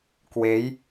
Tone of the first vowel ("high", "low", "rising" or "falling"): rising